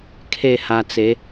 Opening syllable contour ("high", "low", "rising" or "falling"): falling